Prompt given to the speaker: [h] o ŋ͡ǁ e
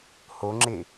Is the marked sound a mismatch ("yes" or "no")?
no